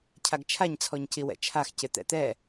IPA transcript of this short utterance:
cʰaɡt͡ʃʰaɲ t͡sʰɔɲciwɛ̰t͡ʃʰax cɪt̪ɛ̰t̪ɛ

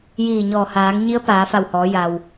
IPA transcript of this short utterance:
jiː˧˩ɲɔː˧˩ haː˩˧ŋɲi˧˥ə̯ paː˩˧fa˧˩whɔː˩˧ja˩w

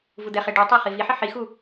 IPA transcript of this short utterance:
vud̪ɛχe ɖutˤe χiviħɪ ħixu

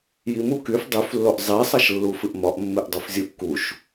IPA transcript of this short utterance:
jimu kyf dˤyflːoʔ zˤisˤʌʃlːu fɨʔmɒʔmːɨʔ dˤufzʲuʔkuʃ

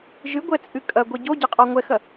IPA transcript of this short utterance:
ʒɨɡʷɛt͡sʼɨ kʼɐɡʷɛ ɟoɟɐqʼɔ ŋʷɛxɐ

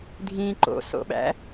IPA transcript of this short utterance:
dʱĩ ǃo̰so̰ɓæ̰

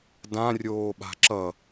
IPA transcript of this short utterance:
dãrʲoːɓa̤ ǁʌ

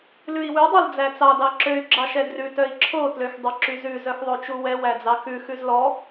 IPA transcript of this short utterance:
lʉi̯wʉ dˤeld͡zæt͡sɑ dɑǁøy̯ ɡ͡ǁɑʃɛdrʉ tœi̯ǁʰo tløxdˤɵǁyzʉ zœxðˤot͡ʃuwɛ wæd͡zɑxʉ xʉzlɔ

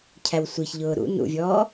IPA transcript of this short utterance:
cʰæwsʷiçʎʊː ɾṵ nṵvʲɔː

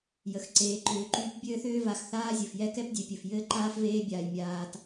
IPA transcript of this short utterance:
jə˩xǀeː˨ǃʏː˨ǃyː˥p bʲɘː˥θʏː˥va˨x θaː˥zʲɘ˩fjɛ˥ kɛ˦pdʲe˨pʲɘ˩f jɘː˥ǃaː˥fveː˦bʲaː˩j mʲaː˨t

